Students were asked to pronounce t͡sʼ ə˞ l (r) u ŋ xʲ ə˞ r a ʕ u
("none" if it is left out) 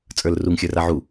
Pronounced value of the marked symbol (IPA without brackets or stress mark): r